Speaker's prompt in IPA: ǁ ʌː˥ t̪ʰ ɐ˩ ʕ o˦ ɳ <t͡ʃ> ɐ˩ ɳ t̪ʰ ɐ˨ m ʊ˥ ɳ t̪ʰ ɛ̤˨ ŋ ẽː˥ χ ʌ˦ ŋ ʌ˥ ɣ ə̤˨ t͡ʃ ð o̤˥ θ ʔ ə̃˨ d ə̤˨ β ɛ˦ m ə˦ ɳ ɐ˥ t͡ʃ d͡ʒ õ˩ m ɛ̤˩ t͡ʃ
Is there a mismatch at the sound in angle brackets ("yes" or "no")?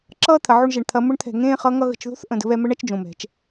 yes